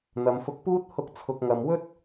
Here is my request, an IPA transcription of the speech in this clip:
n̪ ɐ˨ m f ʊ˧ k̚ p uː˥ t̚ h ʊ˧ k̚ t͡sʰ ʊ˨ k̚ ŋ ɐ˨ m w ɵ˥ t̚

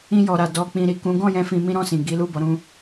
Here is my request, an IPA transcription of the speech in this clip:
ĩ˧ j ɔ˨ ɾ a˨ d ɔ˧ k͡p ĩ˨ ɾ i˨ k ũ˨˦ ɡ ɔ̃˦˨ j ɛ̃˧ f ĩ˧ m ĩ˦ ɾ ɔ̃˦˨ s ĩ˨ ɡ i˨˦ l u˦˨ b ɔ˨˦ ɾ ũ˦

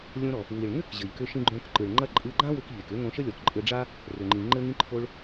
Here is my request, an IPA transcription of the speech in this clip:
lʲ õ˧ ɾ ɔ˩ | w i˩ ɭ ŋ ʏ˥ k ʑ ɘ˩ ʎ k ʏ˧ ʃ ĩ˧ ɡ͡ǃ õ˧ k ǃ ɯ˩ ɭ ŋ͡ǃ ɐ˥ ǃʼ ɯ˧ ɡ͡ǃ ã˥ w ʏ˧ k ʎ e˩ k ʏ˥ ŋ õ˧ ʃ ə˥ lʲ ɔ˩ k ǃʼ ɘ˧ ɖ͡ʐ a˥ | r ʏ˩ ŋ͡ǃ ĩ˩ ŋ͡ǃ ɘ˧ ŋ ĩ˧ ǃʰ o˧ ɭ

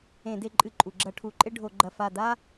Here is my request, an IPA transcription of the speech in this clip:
ẽ˧˩˧ d e˧ ǃʼ ɨ˧˩˧ ǃʼ u˩ ɡ͡ǁ ɐ˧˩˧ ʈʰ u˩˥ ǃʼ e˥ ɖʱ o˧˩˧ ɡ͡ǃ ɐ˧˩ f a˧˩ d a˥

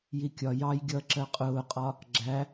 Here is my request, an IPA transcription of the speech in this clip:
j i kʲ ɒ j ɑ j ɡʲ ʌ ǁ ɜ qʼ ʊː qʼ ɒ | ɡ͡ǁ æ

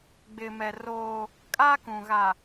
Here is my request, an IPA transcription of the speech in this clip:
ɡ͡b ɪ˨ m ɛ˨ r oː˦ | kʼ a˦ k ũ˨ ɣ a˨

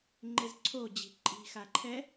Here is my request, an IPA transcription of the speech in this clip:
ŋ͡ǃ e z ǀʰ o d͡ʑ i̤ ǃʼ i̤ x a ǃʰ ɛ

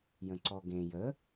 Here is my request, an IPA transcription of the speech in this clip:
j ə̃ ǀ ɔ ɡ ẽ j ə

